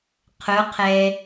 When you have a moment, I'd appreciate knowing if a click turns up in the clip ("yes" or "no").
no